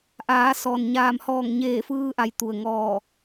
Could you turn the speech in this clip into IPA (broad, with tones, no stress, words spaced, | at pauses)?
ʔaː˩˧sɔː˩n ɲaː˧˩m hɔː˧˩ŋɲeː˧˩fɯː˧ʔa˩j t̪u˩ə̯ŋɔː˧˩